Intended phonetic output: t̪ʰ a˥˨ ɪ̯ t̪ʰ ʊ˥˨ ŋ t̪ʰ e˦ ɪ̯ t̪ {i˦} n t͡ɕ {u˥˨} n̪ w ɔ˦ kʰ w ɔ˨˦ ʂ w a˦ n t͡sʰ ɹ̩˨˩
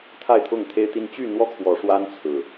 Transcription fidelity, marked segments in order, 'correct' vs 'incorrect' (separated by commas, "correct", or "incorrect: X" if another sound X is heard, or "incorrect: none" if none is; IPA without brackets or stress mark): correct, incorrect: y˥˨